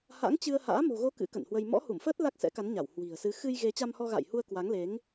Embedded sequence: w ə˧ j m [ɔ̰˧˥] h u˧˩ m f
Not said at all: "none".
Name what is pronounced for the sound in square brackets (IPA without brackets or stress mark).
ɔ̰˧˥